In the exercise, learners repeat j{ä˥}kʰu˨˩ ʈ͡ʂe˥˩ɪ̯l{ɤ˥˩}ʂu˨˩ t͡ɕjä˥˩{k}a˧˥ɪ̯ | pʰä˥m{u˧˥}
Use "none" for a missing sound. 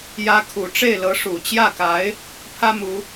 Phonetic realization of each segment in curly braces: ä˧˥, ɤ˧˥, k, u˧˥

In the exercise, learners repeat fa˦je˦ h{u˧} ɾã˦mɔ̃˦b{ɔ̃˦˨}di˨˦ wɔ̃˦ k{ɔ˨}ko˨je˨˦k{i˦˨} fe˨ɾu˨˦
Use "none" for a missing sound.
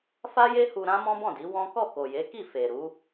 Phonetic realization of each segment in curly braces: u˧, ɔ̃˦˨, ɔ˦˨, i˦˨

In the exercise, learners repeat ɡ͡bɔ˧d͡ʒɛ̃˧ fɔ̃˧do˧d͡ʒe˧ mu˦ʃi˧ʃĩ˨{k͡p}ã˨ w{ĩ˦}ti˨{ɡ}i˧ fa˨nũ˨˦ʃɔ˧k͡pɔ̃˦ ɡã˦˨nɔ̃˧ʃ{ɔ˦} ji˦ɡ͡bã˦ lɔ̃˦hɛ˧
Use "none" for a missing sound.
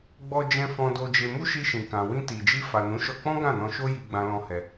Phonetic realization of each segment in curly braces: k, ĩ˧, d͡ʒ, o˦

